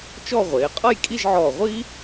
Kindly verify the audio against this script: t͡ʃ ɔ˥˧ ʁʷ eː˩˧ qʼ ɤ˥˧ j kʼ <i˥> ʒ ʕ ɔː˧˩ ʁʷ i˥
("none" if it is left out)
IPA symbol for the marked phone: i˥˧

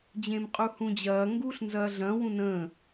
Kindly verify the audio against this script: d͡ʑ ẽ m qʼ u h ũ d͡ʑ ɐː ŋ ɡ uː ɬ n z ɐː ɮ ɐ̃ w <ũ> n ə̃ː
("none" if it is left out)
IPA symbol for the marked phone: ũ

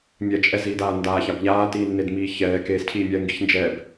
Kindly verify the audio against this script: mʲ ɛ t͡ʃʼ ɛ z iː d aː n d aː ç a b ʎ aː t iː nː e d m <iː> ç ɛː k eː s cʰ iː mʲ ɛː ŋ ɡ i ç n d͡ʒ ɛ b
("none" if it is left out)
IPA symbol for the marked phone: iː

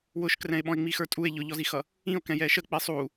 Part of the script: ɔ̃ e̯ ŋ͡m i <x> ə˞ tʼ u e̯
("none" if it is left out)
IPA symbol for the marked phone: x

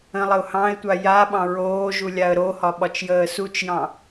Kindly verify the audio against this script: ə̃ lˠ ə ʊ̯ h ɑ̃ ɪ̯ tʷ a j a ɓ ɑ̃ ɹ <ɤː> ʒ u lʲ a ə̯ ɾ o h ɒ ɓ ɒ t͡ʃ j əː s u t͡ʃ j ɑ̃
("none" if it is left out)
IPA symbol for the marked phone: oː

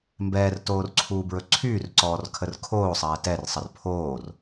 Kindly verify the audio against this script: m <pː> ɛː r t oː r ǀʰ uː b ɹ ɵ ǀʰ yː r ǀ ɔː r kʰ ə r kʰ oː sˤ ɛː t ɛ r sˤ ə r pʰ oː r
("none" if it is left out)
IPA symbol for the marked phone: b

